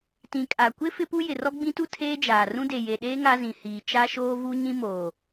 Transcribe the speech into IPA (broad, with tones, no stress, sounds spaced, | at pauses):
t ĩ˨ kʼ a˨ kʷ ɪ˦ f ɪ˦ p u˦ j ɪ˨ r ɔ˦ ɡ͡b ĩ˦ t u˦ tʰ eː˦ d͡ʒ aː˨ r ũ˦ d e˨ j e˨ ɗ eː˦ ŋ a˦ z ĩ˨ h iː˨ t͡ʃ a˦ ʃ oː˦ v u˦ ɲ ĩ˦ m oː˨